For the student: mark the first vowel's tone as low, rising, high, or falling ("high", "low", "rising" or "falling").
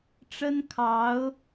high